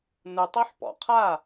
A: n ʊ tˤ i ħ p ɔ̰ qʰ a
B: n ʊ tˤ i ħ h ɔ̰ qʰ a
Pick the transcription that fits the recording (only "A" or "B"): A